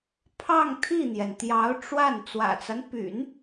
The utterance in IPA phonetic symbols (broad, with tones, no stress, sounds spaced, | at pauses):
pʰ ɑ˥˧ ŋ t̪ʰ i˥˩ n̪ j ɛ˩ n t̪ j ɑ˧˥ ʊ̯ ʈ͡ʂ w a˥˩ n t͡s w ä̰˨˩ t͡s a˦ n p y̰˨˩˦ n